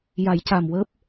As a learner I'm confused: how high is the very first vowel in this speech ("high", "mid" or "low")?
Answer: low